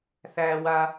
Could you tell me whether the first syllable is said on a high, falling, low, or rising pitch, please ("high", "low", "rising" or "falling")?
high